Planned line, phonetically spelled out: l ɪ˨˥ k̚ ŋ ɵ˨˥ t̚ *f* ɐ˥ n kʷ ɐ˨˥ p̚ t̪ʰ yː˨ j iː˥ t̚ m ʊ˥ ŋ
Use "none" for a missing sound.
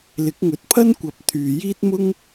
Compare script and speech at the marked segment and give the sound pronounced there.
pʰ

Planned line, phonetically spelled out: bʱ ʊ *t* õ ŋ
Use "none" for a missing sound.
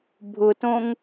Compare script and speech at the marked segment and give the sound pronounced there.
t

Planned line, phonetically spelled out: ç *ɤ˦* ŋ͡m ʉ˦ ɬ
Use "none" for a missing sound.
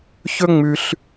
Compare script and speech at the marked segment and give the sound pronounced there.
ɵ˦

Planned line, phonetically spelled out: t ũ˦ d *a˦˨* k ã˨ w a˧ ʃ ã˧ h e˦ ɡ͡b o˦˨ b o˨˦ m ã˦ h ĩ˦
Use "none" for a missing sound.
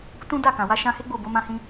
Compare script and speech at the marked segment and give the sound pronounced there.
a˦˨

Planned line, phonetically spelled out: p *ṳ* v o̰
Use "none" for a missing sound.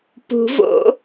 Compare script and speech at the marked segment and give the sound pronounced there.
ṳ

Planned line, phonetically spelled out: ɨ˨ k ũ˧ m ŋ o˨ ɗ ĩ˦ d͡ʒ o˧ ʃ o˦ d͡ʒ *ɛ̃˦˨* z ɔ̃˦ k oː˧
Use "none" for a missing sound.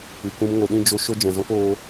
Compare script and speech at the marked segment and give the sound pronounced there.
ɛ̃˨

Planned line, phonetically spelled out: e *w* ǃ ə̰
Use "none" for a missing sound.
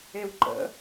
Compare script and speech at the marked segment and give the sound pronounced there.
w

